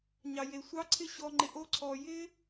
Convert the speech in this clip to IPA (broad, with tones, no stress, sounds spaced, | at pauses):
ɲ ɑ˩ j e˩ sʷ ɑ˦ ǀʰ ɪ˦ ɕ ɔ˨ ŋ͡ǃ ɪ˨ ʔ o˦ ǀʰ ɔ˨ j ɪ˥